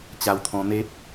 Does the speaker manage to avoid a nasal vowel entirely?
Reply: no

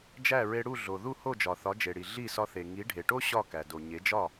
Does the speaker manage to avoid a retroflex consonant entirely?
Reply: no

